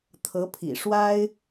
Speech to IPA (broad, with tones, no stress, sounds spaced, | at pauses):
t̪ʰ ɤ˧˥ pʰ ḭ˨˩ ʂ w a˥ ɪ̯